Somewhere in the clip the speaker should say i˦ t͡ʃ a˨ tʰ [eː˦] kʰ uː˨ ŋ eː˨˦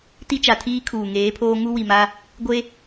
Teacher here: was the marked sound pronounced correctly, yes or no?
no